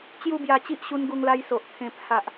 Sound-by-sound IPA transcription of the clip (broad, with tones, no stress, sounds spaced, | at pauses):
t͡ɕ j u˥˧ b j a˧ t͡ɕ i˦ ʔ ɕ u˧ n ɡ u˧ ŋ l a˧ j s o˨ ʔ t̪ʰ ẽ˧ pʰ a˨ ʔ